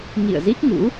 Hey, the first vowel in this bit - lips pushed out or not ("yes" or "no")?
no